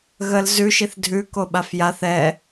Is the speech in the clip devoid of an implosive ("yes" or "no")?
no